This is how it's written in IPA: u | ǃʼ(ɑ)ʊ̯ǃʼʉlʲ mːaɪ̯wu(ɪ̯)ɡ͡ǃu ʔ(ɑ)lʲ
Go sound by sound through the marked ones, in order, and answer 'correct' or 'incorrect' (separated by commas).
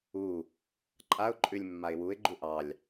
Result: incorrect, correct, correct